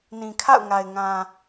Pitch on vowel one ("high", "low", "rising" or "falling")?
low